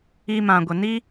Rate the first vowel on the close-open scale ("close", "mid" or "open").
close